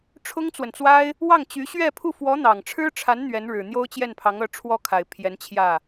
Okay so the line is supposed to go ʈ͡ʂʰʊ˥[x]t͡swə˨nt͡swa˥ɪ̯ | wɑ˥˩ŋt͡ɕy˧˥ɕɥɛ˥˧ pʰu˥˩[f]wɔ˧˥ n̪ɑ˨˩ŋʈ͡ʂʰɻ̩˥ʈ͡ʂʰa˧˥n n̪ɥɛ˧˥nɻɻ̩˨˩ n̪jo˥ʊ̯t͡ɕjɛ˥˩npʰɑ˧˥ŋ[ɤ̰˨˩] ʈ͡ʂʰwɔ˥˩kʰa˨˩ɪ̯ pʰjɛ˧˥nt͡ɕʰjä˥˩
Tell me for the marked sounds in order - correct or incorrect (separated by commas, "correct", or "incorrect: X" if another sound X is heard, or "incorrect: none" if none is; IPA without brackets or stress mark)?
incorrect: ŋ, correct, incorrect: ɤ˧˥